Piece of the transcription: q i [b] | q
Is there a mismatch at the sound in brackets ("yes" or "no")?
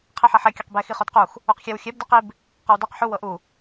no